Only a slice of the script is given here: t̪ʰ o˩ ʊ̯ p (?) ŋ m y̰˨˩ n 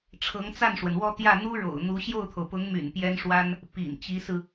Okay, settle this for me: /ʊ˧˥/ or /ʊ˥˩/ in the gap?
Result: ʊ˧˥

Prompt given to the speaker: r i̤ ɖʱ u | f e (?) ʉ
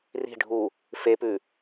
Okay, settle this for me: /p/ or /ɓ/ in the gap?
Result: p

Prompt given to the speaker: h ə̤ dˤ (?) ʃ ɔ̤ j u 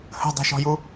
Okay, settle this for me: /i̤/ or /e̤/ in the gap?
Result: i̤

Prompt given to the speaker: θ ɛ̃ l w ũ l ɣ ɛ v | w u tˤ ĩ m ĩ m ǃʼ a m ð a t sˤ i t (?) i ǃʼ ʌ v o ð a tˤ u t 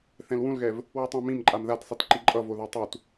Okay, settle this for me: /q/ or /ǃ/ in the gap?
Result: ǃ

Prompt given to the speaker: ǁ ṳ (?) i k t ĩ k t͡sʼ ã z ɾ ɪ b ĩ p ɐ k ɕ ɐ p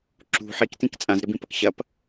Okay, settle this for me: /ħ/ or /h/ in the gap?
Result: ħ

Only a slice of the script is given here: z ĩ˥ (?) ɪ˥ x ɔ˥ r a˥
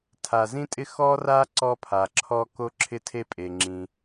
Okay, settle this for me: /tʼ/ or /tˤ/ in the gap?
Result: tʼ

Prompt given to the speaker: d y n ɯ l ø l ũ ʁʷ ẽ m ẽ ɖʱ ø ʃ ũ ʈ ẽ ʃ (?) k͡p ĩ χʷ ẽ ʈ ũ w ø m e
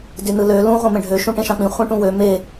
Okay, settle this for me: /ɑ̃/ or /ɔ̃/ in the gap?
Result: ɑ̃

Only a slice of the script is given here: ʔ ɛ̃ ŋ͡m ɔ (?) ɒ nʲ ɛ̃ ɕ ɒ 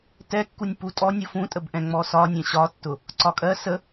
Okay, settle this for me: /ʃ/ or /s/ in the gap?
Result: s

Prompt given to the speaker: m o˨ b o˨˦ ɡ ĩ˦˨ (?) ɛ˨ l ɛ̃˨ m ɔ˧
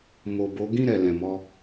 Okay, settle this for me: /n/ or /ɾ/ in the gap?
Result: ɾ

